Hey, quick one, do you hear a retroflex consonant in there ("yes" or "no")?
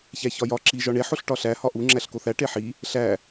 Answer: yes